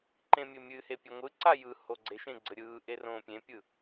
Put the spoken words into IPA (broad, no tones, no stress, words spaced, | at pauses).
ǃẽmʲɘmʲɨhe pʲɛŋʷɨǀa jɯ hoɡ͡ǀeʃẽ ɡ͡ǀɘɾʲɯːʔe rõːpʲẽpʲɯ